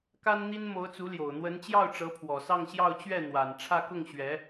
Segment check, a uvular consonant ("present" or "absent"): absent